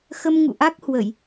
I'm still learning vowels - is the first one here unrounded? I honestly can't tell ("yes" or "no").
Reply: yes